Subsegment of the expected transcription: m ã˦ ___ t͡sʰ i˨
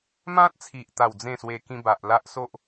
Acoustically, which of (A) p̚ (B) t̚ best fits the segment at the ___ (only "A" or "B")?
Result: B